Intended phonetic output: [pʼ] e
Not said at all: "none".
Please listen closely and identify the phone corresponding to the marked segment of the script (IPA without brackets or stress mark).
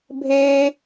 bʱ